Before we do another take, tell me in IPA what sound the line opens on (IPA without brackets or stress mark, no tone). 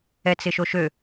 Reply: ɛ